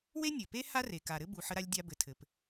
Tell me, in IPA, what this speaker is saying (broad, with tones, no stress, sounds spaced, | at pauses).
w e˥ nʲ ɘ˩ p e˥ h a˥ r e˩ k a˩ ɾ ɘ˥ b u˩ ħ ə˧ ɾ a˧ lʲ dʲ a˧ b ɘ˩ tʰ ɘ˩ p